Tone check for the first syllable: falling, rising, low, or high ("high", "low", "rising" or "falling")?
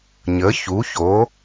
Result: rising